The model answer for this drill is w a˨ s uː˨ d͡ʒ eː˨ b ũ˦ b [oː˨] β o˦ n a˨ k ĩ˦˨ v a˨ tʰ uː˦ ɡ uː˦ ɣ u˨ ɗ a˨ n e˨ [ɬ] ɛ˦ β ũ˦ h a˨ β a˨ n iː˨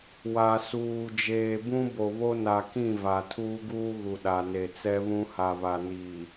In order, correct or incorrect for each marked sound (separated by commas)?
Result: incorrect, incorrect